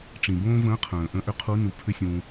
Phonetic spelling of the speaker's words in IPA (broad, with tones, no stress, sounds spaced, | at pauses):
ʈ͡ʂ ĩ˩ b õː˥ v ə̃ː˧˥ qʰ ə̃ː˩ ʔ ə̃˧˥ ʔ ʏ˧˥ qʰ u˧˥ n u˩˧ pʰ ʏ˥ sʲ ũ˧